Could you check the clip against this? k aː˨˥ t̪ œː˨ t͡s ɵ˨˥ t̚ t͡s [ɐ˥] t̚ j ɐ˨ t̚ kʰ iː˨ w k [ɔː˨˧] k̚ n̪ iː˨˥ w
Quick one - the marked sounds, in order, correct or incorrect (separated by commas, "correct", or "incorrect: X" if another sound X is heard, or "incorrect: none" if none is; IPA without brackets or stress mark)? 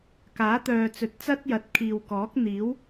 correct, incorrect: ɔː˨˥